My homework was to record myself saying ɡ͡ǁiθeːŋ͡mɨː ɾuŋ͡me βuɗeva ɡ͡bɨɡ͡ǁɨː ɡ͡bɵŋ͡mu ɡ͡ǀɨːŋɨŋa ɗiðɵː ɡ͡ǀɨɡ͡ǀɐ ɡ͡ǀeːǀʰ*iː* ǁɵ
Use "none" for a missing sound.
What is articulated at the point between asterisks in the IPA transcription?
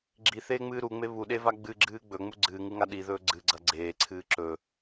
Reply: ɨː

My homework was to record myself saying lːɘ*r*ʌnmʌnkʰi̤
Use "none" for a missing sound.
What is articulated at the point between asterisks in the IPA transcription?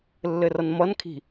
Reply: r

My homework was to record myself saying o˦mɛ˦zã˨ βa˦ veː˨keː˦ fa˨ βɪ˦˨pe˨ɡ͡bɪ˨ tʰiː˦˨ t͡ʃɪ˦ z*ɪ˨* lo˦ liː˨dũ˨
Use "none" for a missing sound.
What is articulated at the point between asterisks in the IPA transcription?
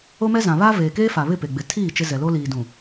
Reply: ɛ˨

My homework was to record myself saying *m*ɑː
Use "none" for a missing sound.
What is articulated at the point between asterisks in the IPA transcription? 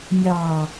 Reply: mʲ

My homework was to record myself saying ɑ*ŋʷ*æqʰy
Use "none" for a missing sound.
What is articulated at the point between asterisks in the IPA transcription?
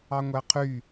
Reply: ŋʷ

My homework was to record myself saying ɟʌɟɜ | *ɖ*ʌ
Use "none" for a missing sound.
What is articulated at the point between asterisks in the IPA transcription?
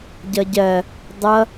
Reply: dˤ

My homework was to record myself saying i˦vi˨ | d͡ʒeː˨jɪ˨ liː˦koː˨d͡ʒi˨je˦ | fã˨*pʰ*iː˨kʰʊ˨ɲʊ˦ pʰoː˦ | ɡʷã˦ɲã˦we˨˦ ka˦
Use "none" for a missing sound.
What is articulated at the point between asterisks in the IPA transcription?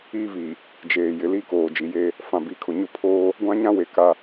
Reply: b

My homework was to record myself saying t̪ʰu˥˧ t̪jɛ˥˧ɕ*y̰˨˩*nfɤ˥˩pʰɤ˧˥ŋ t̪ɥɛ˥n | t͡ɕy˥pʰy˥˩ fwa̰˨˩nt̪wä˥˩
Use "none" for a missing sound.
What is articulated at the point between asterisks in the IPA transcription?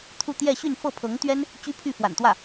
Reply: y˥˧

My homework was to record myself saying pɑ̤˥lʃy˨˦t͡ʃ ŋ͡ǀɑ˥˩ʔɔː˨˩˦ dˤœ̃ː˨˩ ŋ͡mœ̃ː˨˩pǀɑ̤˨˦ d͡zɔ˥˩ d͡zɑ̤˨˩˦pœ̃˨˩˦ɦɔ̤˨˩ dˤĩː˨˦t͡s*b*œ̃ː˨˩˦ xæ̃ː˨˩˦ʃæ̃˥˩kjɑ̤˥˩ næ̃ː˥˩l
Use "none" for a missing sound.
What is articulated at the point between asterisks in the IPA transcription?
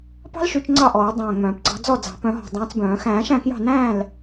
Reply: b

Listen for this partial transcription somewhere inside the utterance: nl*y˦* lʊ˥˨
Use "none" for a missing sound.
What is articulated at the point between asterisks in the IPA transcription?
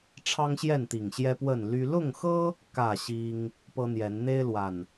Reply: y˦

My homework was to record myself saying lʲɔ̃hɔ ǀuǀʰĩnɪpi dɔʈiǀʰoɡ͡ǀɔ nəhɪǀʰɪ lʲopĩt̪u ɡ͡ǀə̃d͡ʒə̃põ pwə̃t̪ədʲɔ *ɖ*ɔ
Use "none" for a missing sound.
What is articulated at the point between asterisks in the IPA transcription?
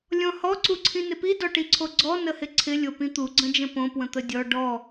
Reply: ɖ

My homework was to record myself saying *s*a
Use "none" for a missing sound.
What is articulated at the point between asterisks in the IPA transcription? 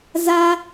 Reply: z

